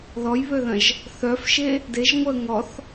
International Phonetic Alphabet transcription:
ð ɔ j β ø ð ɐ̃ ʒ | θ œ f ʃ e | d e ʒ ŋʷ ə ŋ ɔ θ

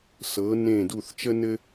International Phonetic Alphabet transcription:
s ɤ˨˥ n ẽ˦˨ d u˦˨ θ t͡ʃ ə˥ n ɘ˥

